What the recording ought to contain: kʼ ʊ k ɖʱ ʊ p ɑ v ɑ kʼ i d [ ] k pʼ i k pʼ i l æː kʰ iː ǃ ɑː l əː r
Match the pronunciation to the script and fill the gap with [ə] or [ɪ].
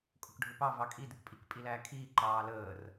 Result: ɪ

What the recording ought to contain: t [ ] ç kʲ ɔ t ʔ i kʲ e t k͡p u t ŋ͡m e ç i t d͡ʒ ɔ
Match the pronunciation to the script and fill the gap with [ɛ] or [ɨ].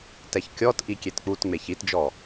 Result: ɛ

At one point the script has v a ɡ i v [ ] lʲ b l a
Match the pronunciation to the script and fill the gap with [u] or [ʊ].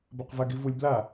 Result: u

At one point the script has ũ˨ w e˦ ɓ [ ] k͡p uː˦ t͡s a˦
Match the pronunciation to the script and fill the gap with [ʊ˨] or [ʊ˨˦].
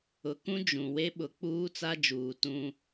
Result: ʊ˨˦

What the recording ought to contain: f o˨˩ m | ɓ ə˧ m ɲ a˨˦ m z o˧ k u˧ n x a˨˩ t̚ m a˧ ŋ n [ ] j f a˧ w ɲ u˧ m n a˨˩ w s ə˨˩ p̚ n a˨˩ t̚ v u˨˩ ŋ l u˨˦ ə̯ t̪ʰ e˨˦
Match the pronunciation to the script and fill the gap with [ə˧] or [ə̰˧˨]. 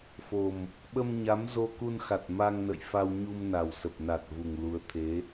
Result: ə̰˧˨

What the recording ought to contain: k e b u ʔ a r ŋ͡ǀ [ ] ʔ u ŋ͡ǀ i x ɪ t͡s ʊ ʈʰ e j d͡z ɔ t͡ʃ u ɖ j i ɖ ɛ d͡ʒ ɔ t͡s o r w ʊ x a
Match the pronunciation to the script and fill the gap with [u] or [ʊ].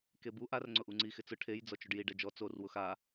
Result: ʊ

